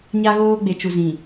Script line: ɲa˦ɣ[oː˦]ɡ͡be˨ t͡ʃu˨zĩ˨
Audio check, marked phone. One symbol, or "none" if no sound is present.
oː˦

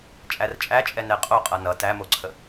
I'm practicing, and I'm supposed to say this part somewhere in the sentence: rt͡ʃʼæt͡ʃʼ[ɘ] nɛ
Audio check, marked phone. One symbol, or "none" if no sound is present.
ɛ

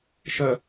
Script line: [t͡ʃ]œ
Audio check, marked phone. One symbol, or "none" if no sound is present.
ʃ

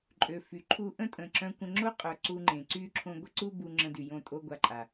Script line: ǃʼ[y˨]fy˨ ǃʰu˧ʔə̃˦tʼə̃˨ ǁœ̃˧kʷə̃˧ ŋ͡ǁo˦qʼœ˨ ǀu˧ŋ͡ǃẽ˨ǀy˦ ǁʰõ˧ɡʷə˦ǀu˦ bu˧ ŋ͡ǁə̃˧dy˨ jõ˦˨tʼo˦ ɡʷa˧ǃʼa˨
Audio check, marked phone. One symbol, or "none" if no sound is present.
ø˨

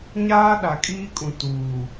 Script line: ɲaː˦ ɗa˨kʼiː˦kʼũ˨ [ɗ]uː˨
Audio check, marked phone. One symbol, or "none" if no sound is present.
t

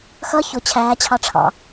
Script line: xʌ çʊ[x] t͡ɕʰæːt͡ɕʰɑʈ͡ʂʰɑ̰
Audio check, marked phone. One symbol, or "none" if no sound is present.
none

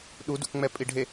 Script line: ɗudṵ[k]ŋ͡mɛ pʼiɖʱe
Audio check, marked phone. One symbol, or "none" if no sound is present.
k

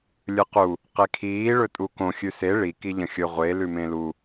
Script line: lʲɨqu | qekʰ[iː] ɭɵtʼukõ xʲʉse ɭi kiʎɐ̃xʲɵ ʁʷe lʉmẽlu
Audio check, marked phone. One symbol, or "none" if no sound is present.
iː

